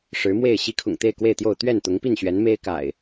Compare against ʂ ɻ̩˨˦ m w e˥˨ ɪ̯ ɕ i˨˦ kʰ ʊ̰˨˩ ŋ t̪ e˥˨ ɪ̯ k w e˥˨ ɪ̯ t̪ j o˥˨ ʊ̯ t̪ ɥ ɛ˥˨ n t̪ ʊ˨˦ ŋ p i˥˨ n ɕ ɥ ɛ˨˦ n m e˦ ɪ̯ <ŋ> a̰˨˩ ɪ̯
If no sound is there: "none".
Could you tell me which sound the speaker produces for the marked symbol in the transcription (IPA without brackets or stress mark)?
k